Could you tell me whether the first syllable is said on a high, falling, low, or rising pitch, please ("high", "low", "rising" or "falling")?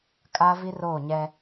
high